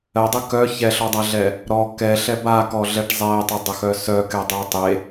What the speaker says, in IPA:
ɜ dˤ ɘ k œ ç ɛ ɬ ɔ dˤ a ɮ ɛ | ɾ ɔ k ɛ ɬ ɛ b a k ɔ ɮ ɛ ʈ zˤ ɛ tˤ ɘ dˤ ɘ x œ s œ k ɛ dˤ e tˤ e

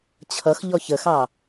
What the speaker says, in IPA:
t͡ɕʰ ʌ x ʎ ɔ ç ə x ɑ

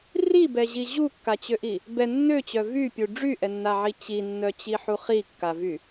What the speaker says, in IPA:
r i b ɛ ʑ i ʑ u kː a t͡ɕ ø ʔ i | b ɛ nː ø t͡ɕ œ v y pʲ u ɖ͡ʐ y ʔ ɛ nː a ʕ i t͡ɕ i nː œ t͡ɕ i ħ u χ i kː a v y

